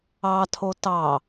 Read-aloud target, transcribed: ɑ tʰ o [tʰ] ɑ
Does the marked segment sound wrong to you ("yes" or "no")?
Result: yes